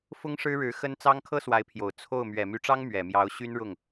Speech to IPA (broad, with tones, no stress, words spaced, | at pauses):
fʊ˥ŋʂɻ̩˥ɻɻ̩˧˥ xə˥nt͡sɑ˥ŋ kʰɤ˥swa˧˥ɪ̯pʰjo˨˩ʊ̯ t͡sʰo˥˩ʊ̯ mɥɛ˨˩my˧˥ʈ͡ʂɑ˥ŋ mɥɛ˨˩mjɑ˧˥ʊ̯ ɕy˥nɻʊ˥˩ŋ